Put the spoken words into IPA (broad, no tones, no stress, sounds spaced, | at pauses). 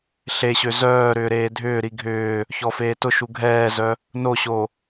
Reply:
ɬ e ɕ ø z œː ɾ ʏː ɾ eː dʱ ʏː ɾ i ɡʱ ʏː | ç ɔ f eː t ʊ ʃ u ɡʱ ɛː z œ | n o ɕ o